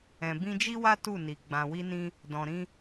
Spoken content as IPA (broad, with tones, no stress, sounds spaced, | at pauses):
ɛ̃˨ b ĩ˧ d͡ʒ i˦ w a˦ t u˦˨ n i˨ ɡ͡b ã˨ w i˧ n ĩ˧ | d ɔ̃˨ ɾ ĩ˧